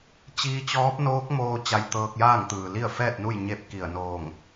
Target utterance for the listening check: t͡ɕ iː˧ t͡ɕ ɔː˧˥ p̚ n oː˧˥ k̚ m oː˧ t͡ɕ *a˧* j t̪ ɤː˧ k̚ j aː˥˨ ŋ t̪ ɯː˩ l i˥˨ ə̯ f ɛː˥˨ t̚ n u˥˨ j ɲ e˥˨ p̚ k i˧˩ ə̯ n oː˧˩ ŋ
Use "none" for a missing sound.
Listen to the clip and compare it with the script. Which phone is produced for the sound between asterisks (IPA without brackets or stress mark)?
a˧